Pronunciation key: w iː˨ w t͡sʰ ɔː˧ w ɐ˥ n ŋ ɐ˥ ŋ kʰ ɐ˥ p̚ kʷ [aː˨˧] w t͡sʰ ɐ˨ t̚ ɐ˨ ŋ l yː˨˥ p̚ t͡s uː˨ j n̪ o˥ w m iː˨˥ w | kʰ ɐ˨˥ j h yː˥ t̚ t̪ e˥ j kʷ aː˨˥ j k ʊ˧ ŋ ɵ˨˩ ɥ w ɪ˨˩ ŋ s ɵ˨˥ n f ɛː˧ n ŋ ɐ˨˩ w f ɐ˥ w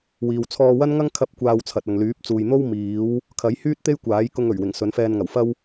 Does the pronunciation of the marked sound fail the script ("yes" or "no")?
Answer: yes